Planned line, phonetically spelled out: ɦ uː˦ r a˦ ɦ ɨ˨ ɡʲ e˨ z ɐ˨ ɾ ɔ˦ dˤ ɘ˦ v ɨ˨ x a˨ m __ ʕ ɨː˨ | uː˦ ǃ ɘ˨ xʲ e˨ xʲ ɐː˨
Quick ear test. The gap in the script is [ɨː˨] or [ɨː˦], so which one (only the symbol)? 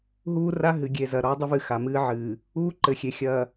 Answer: ɨː˦